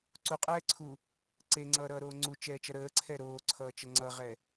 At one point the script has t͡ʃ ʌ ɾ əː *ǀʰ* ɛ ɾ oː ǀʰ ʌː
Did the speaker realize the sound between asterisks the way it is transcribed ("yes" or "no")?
yes